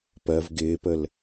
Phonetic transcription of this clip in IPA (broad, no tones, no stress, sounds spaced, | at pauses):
p ɜ v ɡ ɪː p ə l